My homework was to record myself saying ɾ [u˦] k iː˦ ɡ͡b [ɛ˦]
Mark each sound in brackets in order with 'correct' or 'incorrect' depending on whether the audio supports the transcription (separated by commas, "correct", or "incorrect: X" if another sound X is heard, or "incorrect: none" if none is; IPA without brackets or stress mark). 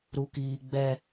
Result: correct, correct